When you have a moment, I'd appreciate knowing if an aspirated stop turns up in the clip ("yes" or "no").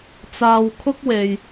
yes